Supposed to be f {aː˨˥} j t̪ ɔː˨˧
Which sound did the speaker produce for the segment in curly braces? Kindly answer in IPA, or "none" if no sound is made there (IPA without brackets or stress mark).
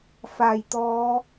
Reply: aː˨˩